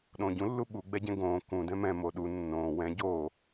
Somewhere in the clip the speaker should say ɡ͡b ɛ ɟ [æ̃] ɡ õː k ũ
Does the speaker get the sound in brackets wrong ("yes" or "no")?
yes